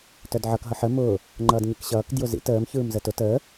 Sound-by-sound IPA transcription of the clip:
t œ d ʕ ʌ k ɦ ʌ ħ ə m ʊː | ŋ͡ǃ ʌː d ɲ i k ɕ ʌː k d j ʊ z ḭ t əː m ç ɯː m z ə t ʊ t əː

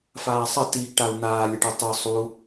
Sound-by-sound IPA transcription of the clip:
f aː sˤ ə t i ɡ ʈ a u̯ n̪ aː lʲ ə ʈ ɛ tˤ œ sˤ u

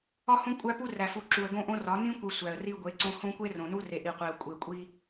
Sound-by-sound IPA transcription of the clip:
ɒ˦ h õ˦ kʷʼ æ˦ p u˦ r æ˨ f u˨ ǁ u˨ ə̯ ɡ õ˦ ʔ õ˦ r ɒ˨˦ n ĩ˦ kʷ i˨ sʷ æ˨ ə̯ r i˦ ɡʷ e˨˦ ǀ õ˦ h õ˦ kʷ e˦ r õ˨ n u˦ r e˨ ʔ i˨ qʷ e˨ ə̯ kʷʼ e˨ kʷʼ i˦

